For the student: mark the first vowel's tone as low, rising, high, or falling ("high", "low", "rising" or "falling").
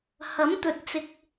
rising